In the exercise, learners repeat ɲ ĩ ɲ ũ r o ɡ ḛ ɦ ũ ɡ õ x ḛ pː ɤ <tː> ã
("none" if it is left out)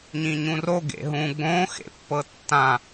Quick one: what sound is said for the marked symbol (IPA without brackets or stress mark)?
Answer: tː